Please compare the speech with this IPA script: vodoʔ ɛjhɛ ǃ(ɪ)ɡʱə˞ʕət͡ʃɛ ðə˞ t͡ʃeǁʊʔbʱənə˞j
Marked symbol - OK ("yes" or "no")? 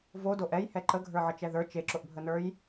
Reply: no